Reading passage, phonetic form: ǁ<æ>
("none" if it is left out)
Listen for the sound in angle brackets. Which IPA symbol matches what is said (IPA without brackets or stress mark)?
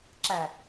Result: æ